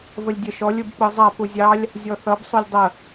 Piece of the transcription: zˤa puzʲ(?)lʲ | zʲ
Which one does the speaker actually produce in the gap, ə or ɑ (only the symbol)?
ɑ